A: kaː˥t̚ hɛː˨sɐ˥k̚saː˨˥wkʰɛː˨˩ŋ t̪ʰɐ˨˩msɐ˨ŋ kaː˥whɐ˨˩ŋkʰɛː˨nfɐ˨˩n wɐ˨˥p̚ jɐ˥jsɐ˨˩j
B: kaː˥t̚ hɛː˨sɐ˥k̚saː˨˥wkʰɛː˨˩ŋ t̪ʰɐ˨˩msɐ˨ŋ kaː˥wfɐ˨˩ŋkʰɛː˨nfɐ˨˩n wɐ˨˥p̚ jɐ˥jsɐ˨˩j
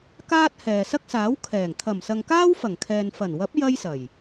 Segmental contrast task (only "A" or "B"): B